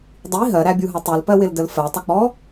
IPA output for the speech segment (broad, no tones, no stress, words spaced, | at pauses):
dˤi ɦɜɾæbʲuɦʌ tˤulpɜwɪldəl fɜtˤək͡pɔ